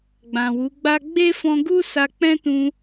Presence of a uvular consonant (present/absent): absent